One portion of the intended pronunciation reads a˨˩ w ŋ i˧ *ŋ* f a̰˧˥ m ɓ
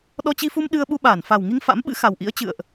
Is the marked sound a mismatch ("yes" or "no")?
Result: no